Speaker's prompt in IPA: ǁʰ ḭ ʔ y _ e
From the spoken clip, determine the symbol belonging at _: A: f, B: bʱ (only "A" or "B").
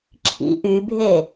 B